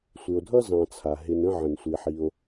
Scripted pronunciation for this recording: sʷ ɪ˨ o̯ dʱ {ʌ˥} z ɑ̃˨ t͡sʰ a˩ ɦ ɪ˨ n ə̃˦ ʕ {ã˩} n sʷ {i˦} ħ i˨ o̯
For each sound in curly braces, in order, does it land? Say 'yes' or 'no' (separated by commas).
yes, no, no